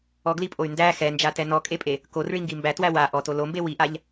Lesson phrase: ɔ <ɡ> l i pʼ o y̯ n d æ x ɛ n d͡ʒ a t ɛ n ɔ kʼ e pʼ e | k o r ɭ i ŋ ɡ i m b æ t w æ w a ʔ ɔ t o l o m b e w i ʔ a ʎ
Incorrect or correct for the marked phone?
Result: correct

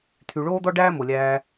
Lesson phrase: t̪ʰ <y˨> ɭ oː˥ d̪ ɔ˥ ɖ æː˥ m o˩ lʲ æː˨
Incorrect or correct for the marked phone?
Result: correct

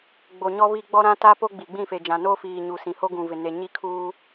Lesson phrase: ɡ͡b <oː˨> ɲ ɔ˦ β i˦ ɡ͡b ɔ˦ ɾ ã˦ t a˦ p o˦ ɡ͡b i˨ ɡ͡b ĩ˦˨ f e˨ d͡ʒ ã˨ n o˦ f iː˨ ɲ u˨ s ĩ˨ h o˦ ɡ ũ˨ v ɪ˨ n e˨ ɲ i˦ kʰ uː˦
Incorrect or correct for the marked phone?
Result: incorrect: o˨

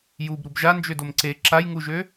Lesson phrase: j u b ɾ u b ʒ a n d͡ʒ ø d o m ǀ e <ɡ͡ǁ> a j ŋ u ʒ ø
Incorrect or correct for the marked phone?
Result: incorrect: ǁ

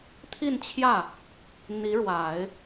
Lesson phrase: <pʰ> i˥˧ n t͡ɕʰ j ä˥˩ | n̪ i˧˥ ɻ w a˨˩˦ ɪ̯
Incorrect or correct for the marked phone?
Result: incorrect: t̪ʰ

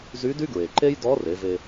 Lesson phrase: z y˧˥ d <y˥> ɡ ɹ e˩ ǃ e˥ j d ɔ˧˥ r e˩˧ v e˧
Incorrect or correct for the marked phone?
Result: correct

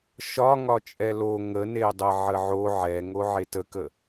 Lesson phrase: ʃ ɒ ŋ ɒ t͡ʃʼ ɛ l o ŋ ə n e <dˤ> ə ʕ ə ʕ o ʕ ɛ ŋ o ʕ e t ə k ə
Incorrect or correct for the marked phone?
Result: correct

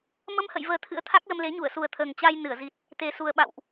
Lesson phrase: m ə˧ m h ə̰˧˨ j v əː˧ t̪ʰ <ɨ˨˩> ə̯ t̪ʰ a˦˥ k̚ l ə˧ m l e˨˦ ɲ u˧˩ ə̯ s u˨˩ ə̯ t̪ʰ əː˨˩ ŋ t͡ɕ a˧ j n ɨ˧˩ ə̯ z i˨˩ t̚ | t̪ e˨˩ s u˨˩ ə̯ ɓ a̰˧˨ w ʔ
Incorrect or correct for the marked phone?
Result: incorrect: ɨ̰˧˥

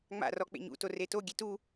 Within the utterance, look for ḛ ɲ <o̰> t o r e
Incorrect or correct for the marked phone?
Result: incorrect: ṵ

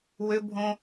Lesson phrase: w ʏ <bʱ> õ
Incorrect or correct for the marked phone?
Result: correct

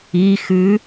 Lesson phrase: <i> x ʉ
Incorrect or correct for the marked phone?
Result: correct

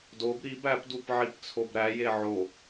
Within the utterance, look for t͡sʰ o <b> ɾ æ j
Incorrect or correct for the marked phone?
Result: correct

